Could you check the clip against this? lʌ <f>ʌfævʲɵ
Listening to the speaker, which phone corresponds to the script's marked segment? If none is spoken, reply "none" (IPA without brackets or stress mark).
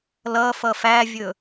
f